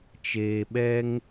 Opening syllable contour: low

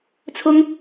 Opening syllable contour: high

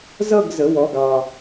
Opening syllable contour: falling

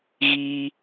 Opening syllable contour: high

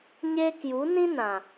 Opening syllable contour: high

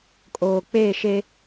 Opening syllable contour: low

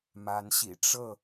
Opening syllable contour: rising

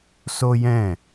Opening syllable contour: high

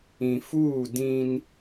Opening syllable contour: low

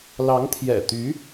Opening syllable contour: rising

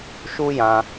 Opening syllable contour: high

